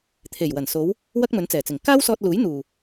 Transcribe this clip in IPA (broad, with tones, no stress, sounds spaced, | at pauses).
t̪ʰ e˨˩ j w ɐ˨˩ n s o˨˧ w | w ɐ˥ k̚ m ɵ˨˥ n t͡s ɛː˨˩ t͡s ɪ˨˩ ŋ k aː˥ w s ɔː˧ t̚ l uː˨˥ j n̪ uː˨˩